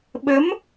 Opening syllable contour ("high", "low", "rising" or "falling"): rising